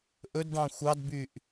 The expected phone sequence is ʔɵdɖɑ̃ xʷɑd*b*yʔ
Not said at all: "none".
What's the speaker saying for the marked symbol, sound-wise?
b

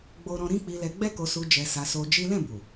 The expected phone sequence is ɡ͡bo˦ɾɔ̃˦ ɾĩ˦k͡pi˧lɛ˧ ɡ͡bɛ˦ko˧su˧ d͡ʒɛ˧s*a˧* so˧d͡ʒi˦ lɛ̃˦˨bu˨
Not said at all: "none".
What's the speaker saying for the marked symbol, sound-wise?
a˧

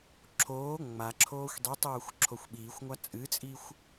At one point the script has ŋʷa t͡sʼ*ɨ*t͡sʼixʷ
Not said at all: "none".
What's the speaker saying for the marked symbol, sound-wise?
ɨ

